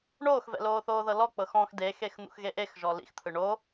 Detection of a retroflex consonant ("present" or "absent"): present